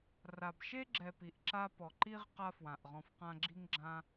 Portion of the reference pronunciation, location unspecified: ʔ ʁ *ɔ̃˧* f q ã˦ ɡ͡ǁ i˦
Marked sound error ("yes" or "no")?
no